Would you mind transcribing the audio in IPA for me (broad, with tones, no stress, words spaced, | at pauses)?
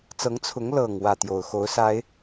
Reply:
t͡sɤ˨˦ŋt͡sʰʊ˨˦ŋ lɤ˨˩ŋ wä˥˨t̪jo˨˩ʊ̯ xo˨˦ʊ̯sa˨˦ɪ̯